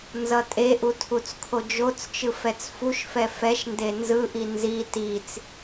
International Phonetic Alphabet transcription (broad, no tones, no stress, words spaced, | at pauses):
nzʌtʼeʔu tʰut͡skʰod͡ʒot͡st͡ʃɯ fɛt͡sfuʃfɛ fɛʃ ndenzɯʔi nzi tit͡s